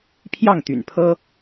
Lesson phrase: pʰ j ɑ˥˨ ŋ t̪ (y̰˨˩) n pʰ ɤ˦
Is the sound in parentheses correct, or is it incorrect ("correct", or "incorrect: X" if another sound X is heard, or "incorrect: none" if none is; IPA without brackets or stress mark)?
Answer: correct